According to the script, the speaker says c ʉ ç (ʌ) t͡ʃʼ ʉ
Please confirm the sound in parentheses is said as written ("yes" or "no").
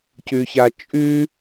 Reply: no